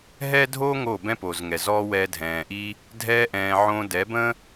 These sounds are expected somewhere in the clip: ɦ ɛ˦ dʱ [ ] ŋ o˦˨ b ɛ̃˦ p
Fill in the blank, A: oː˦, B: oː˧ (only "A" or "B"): A